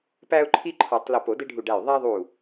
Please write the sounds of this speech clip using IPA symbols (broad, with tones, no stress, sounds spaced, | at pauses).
p æ˦ ʊ̯ ǃʰ i˦ ǃʰ ɔ˨˩˦ tˤ l o˧˩ p o˨˩˦ d e˦ ɖʱ u˧˩ ɖ æ˧˩ j ðˤ æ˦ ðˤ u˧˩